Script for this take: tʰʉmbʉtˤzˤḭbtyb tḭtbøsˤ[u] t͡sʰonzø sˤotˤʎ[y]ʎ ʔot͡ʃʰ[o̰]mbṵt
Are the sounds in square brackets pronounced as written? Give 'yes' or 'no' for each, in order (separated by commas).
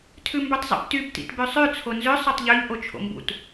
no, no, yes